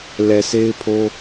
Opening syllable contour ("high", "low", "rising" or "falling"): low